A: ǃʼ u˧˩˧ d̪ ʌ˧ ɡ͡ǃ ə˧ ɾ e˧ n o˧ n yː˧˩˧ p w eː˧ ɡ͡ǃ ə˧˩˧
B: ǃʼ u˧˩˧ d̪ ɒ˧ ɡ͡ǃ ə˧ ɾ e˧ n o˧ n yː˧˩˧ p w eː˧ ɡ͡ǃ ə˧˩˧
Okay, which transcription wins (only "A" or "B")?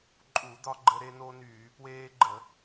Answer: B